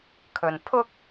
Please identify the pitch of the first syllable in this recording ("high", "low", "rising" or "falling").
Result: low